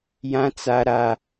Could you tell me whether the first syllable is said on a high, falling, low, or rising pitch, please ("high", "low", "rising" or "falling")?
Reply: low